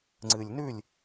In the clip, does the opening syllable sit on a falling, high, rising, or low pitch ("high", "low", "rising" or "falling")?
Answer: low